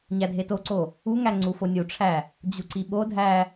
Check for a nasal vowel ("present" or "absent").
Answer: absent